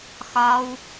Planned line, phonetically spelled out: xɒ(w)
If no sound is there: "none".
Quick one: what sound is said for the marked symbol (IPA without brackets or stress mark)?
w